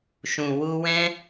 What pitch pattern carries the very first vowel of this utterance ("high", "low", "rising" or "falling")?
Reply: low